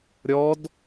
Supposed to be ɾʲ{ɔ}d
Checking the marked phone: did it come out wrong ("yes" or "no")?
no